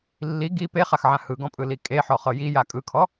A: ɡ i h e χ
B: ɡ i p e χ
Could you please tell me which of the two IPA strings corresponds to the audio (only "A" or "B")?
B